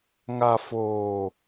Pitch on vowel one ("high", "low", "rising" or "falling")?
low